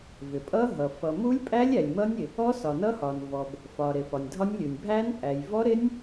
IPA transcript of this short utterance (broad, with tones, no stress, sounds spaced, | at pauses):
v ɪ˩ pʼ ʌ˦˥ ɦ ʌ˩ f ʌ˩ m u˦˥ lʲ pʼ æ˦˥ lʲ æ˩ lʲ m ʌ˦˥ nʲ ɪ˩ | ɔ˦˥ s ɒ˩ n ʌ˦˥ h ɒ˩ n v ɔ˩ b | f ɒ˩ ɾ ɪ˩ f ɒ˩ nʲ dʱ ɒ˦˥ nʲ lʲ u˩ nʲ bʱ æ˦˥ n pʼ æ˩ j v ɔ˦˥ ɾ ɪ˦˥ nʲ